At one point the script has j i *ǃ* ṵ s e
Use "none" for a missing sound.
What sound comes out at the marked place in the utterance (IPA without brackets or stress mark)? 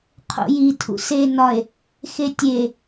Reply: tʰ